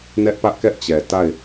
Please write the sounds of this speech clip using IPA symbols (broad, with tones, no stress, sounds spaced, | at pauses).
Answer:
n ɛ˦ ʔ p ä˦ ʔ k ɛ˦ ʔ t͡ɕ ɛ˨ t a˦˨ ɪ̯